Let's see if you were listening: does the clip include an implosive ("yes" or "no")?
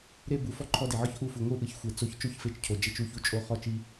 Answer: no